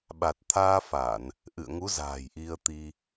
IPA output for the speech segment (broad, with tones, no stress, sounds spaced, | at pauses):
ɓ a˨˩ t̚ t̪ʰ aː˧ f a˧˩˨ n | ʔ ɨ̰˧˨ ə̯ ŋ u˨˦ z a̤ː˨˩ j ʔ i˧ ə̯ t̪ i˧